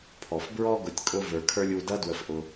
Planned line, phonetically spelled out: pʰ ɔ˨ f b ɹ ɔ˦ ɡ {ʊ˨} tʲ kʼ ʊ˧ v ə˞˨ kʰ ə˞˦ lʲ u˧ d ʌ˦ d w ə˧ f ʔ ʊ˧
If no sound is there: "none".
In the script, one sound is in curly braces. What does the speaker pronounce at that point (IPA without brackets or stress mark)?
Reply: ʊ˨